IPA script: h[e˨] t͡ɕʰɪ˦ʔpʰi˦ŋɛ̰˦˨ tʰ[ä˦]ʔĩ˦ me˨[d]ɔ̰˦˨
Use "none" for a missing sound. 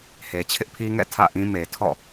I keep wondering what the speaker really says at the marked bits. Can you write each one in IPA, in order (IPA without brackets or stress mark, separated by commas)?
e˨, ä̰˦˨, tʰ